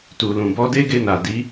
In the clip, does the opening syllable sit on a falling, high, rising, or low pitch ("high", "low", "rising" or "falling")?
low